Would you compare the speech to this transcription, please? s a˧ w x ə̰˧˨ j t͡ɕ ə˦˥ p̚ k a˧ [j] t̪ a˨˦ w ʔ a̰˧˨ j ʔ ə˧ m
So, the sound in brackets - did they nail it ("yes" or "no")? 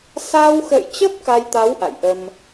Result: yes